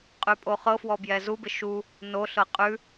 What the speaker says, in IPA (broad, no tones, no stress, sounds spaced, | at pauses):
qʼ ʉ pʼ o χ ɤ f w ɔ b j ɛ z u b ɪ ʃ u | n o ɬ ɤ qʼ ʉ